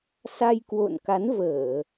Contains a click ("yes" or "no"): no